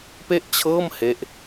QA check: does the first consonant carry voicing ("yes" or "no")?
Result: no